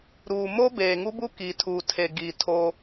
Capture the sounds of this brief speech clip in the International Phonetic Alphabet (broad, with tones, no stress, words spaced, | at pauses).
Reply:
ɾuː˨mo˦ beː˨ŋu˦bu˦ ki˨tʰu˨tʰe˨ ɡi˨tʰo˦